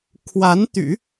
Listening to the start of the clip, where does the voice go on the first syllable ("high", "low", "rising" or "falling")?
rising